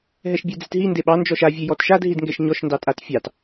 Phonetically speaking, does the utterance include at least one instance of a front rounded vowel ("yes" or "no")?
no